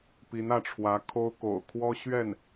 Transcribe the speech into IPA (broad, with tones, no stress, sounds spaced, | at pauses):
p i˧˥ n ä˥˩ ʈ͡ʂʰ w ä˧˥ kʰ o˥ ʊ̯ k o̰˨˩ ʊ̯ kʰ w ɔ˥ ɕ ɥ ɛ˥˩ n